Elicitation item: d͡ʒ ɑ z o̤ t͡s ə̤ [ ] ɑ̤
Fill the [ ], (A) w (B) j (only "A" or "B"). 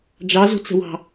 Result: A